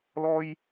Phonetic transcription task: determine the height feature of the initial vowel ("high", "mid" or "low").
mid